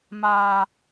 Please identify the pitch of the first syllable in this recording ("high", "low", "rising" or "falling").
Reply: low